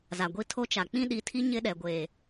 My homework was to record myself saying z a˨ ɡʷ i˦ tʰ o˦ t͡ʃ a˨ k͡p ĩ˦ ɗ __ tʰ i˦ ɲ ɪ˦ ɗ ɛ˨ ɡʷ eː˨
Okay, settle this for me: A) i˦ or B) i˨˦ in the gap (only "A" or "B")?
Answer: B